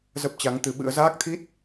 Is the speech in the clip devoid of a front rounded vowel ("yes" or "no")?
yes